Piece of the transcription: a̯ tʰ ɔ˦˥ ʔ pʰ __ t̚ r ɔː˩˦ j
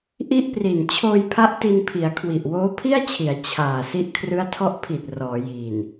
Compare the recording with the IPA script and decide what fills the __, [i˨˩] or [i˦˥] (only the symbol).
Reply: i˨˩